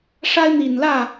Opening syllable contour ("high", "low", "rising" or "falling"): high